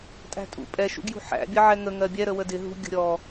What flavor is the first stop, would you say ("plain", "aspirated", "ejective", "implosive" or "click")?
ejective